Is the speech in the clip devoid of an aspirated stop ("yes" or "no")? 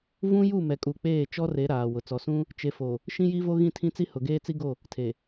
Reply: no